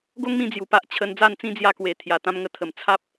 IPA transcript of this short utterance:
ɡo˦ŋmĩ˧ d͡zju˨˩pa˦ʔ t͡ɕʰə˧n d͡za˥˧nt͡sĩ˦ d͡zja˧kwe˨˩ t̪ʰja˨˩t̪ã˧mŋə˧ t̪ʰə˨˩m t͡sʰa˦p̚

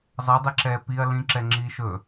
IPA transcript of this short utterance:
zˤɤdˤɛǁɛː piɐ̯ lĩǁɛŋ͡ǁiː ʃɵ

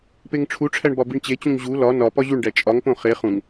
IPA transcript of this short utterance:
peŋʈ͡ʂʰuʈ͡ʂʰæɳ bɒbiɳt͡ɕet͡ɕũŋ ʑu lɒ nɒpɒ ʑuɳɖæ t͡ʃʼɒŋpõ χe χũŋ

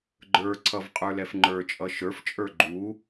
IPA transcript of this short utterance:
ɡ͡ǃə˞ǀʰʌv qʼə˞lɛfŋ͡ǃə˞t͡ʃʼʌ ʃə˞ft͡ʃʼə˞ ɡ͡ǃu

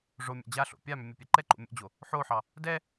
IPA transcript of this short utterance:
ʐomʲa̰ d͡ʑaɬo̰ pʲamʏ mʲopʲɛǃɛǃo̰ mʲo̰d͡ʑo | ħoħɑ | dɛ

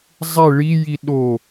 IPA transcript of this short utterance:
zˤe ɭiji ɗo

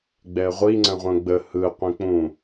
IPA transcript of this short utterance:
ɡ͡bɛə̯ʁʷi ŋ͡ǀə̃ʁʷə̃ ɡ͡bə hɯ qʷĩk͡pũ

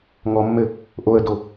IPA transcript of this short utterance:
ŋɔmːɘ | ʔoə̯do

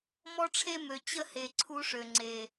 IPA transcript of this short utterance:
mɔ˦ʈ͡ʂʰe˦ mø˨ t͡ɕə˦he˨ ǀʰu˦ʂø˨ŋ͡ǀe˨

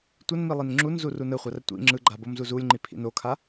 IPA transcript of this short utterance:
tʷənmi lˠinŋ͡ǁunzu runəχʷar tʷḭ ŋ͡ǁɯɡ͡ǃa bomzuzulʲŋ͡ǃi pʰḭnokʰa

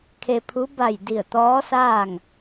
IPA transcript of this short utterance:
kʰe˧pʰu˧˥ ba˧˩j di˧˩ə̯t̪ɔː˧˥saː˥˨ŋ

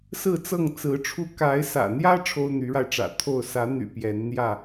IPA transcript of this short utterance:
sɹ̩˥˨t͡sɤ˥˨ŋt͡sɹ̩˨˦ʈ͡ʂʰu˦ ka˨˦ɪ̯sä̰˨˩n̪jä˦ ʈ͡ʂʰo˦ʊ̯n̪y˨˦ɻa˧ɪ̯ʈ͡ʂä̰˨˩ t̪ʰo˥˨ʊ̯ sä˨˦n̪y̰˨˩ pjɛ˨˦nn̪jä˥˨

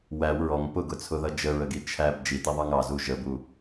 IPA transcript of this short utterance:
wæw ɹɔŋ pʊɡʊt͡sʰʊðʌ d͡ʒəɹəɡi t͡ʃʰæb d͡ʒitiðˤɑŋ ɑzu ʒəbu

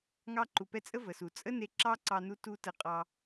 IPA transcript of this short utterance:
ŋɑ˧ǃu˨pɛ˧t͡sʼə˦ və˨su˨ t͡sʼə˦ne˧ ǁɑ˦ǀɑ˧nu˧ tu˦tə˧ qʼɑ˧

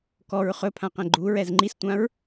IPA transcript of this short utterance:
kɔɹ χɵpʰãqɛ̃ ɡ͡ǃuɹɛz ŋ͡ǃistʷãɹ

